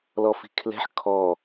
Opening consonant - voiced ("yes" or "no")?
yes